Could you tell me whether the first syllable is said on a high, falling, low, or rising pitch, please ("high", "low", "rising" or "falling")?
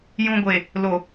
low